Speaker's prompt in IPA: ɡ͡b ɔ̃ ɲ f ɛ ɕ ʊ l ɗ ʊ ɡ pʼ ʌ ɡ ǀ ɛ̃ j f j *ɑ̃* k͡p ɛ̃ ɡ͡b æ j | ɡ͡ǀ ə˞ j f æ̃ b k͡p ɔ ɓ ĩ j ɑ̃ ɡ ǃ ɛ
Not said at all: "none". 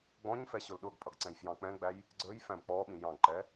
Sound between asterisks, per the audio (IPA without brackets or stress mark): ɑ̃